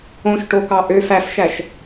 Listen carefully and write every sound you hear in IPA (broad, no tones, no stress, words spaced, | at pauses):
õʃʈokɑ ʔøf æfʃæʃ